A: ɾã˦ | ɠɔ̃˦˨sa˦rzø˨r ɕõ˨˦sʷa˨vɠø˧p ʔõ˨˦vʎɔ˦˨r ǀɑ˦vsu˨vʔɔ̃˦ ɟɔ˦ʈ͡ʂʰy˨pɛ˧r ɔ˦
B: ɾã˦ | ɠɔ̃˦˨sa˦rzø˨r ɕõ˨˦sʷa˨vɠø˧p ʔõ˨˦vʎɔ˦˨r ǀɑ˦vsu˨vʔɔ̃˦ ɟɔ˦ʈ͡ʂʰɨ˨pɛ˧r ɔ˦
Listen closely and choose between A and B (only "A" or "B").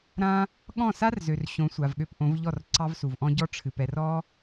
B